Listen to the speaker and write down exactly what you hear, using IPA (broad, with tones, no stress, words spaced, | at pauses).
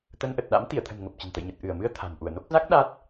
t̪ə˧nʔə˨˩t̚ ɗa̰˧˥m t̪i˧˩ə̯t̪ʰə̤˨˩n ŋə˨˩p̚t͡ɕə̤˨˩nt̪ə̰˧˨jɲə˨˩t̚ ʔɨ˧˩ə̯mɨ˧ə̯ t̪ʰa̤˨˩n ʔu˧˩ə̯no˦˥k̚ za˦˥k̚ ɗa˦˥t̚